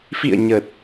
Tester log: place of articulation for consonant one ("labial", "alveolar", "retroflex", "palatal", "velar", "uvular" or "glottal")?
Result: labial